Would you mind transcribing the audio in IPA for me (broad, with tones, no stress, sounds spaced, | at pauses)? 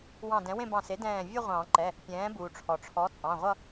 w ɑ̃˧˩ d ɛ̃˩˥ w ẽ˥˧ b ɑ̃˧˩ s e˩˥ d ɛ̃ː˧˩ vʲ ʌ˥˧ ʁʷ ɑ̃˨˩˦ ǃ ɛ˩˧˩ | pʲ ɛ̃ː˩˥ b uː˩ ʈ͡ʂʰ ɔ˩ ʈ͡ʂʰ ɔ˩˥ t͡sʼ ɑ̃˩˧˩ ʁʷ ʌ˥˧